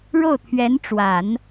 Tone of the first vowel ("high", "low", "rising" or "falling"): falling